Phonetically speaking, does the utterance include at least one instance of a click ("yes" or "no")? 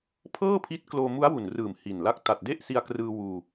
no